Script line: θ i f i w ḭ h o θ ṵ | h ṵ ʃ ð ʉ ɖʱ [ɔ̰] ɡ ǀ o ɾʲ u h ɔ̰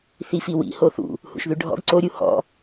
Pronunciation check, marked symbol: correct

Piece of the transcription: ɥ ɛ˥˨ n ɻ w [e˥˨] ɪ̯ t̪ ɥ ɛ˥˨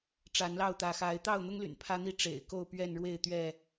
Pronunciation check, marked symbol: correct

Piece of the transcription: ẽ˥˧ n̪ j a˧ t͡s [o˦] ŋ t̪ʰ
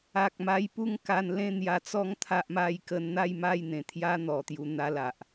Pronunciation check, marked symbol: incorrect: ɔ˦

